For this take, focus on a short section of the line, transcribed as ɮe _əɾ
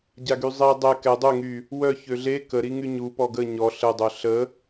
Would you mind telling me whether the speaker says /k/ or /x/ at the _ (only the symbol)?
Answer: k